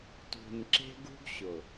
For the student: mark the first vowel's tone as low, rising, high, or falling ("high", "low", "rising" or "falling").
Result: low